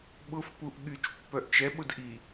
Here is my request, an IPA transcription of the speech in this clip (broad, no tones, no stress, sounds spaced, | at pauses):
ɓ ʊ f p u ʔ ɠ y t͡ʃ pː œ ʔ t͡ʃ ɛ ɓ ʊ d ʔ i